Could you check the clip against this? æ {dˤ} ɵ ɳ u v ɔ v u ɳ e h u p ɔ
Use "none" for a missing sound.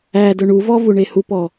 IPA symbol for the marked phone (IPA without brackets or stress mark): d